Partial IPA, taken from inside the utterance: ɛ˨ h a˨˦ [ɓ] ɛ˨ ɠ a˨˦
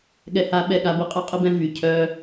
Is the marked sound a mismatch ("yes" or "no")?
no